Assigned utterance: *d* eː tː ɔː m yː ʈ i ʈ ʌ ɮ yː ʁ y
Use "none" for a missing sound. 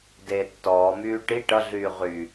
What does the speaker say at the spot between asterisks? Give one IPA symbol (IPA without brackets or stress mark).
d